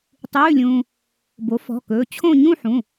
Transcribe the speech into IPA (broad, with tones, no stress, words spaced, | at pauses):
tˤʉː˧˥˧lʲũː˧ | bo˩˥fɔ̤˩˧˩kɵː˩˧˩ t͡ɕʰõ˥˧ ɲũ˥˧ħũ˩˧˩